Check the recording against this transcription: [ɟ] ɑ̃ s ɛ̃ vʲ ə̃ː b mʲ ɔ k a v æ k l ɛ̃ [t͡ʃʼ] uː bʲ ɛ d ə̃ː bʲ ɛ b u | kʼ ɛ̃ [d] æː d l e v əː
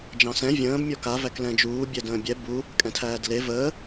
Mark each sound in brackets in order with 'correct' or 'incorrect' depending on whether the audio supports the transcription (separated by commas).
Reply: incorrect, incorrect, incorrect